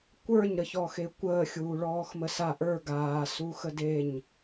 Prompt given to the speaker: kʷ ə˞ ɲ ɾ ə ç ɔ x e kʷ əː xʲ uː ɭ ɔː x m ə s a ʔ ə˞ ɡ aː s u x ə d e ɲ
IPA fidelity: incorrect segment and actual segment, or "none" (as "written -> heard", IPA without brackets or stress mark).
none